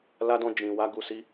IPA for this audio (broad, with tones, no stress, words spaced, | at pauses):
la˦dɔ̃˦ d͡ʒĩ˧ wa˦ɡu˦si˦